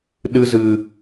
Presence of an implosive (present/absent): present